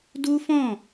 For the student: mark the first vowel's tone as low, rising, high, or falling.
high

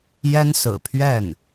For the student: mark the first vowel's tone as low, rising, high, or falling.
high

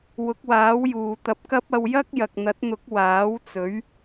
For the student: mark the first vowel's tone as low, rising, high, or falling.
rising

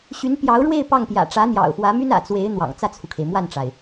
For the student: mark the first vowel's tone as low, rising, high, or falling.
rising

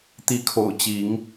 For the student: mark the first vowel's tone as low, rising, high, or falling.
rising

